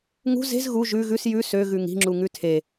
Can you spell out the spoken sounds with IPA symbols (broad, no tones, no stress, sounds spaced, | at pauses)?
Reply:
ŋ ṳ z e̤ z ɣ u ʒ ʉ ɣ ʉ s j ʉ s ø ɣ ʉ ŋ i̤ ŋ͡ǁ u ŋ ʉ tʰ e